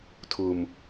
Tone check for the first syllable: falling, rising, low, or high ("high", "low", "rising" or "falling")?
low